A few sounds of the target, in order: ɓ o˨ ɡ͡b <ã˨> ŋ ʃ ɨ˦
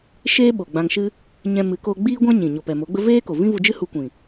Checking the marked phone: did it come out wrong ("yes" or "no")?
yes